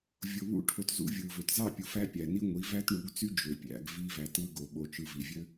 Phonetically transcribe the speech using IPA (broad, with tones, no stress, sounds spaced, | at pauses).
vʲ o˨ β ṵ˦ ʈʰ o˧ t z ṵ˦ vʲ ɯ˨ v ø˨ t z ɑ˦˨ pʲ u˨ f æ˦ pʲ æ˨ n i˦ ŋʷ i˨˦ v æ˦ t ɳ u˨˦ ɡ t͡s y˦ d͡ʒ ø˨ pʲ æ̰˧ ɡ v i˦ v æ˧ t ɯ˦ ɡ o˨ ɓ o˧ t͡ʃ ɯ˧ v i˨ vʲ ø˦